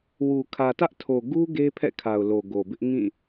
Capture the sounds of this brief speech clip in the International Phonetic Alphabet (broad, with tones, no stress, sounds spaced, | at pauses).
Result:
w u˨ kʰ ä˨ t ä˦ ʔ tʰ o˨ ɡ u˦ ɡ e˦ pʰ ɛ̰˦˨ kʰ a˨ ʊ̯ l o˨ ɡ o˨ b ɪ˦ ʔ ŋ ĩ˦˨